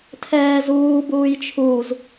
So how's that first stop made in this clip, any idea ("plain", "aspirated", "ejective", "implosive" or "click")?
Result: aspirated